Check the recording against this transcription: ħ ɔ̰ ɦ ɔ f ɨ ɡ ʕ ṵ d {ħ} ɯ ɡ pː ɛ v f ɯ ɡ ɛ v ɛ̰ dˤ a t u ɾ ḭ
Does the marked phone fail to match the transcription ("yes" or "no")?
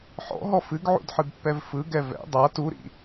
no